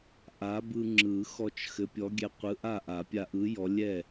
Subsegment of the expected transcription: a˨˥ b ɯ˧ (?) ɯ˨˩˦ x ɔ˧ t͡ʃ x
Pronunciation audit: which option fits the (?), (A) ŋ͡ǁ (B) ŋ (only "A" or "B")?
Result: A